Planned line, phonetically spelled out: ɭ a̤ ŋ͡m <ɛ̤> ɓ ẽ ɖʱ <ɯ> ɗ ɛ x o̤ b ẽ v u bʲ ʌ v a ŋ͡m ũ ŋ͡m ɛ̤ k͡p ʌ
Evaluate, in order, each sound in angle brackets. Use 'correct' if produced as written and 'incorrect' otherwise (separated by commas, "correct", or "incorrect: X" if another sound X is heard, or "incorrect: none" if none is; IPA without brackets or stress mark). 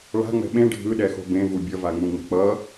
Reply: correct, correct